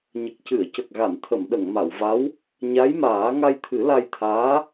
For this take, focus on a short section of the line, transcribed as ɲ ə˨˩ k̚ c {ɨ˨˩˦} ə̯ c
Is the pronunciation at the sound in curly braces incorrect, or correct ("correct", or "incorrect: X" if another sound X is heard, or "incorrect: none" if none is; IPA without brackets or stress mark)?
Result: incorrect: ɨ˨˩˨